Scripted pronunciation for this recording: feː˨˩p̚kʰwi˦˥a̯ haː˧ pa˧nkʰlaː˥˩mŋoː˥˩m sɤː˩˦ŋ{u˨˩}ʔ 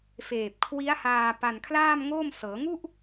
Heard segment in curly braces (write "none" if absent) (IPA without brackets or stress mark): u˥˩